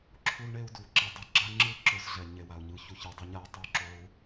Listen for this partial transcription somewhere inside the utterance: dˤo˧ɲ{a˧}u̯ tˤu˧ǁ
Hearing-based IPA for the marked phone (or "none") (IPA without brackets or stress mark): a˧